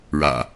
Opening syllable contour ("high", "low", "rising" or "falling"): low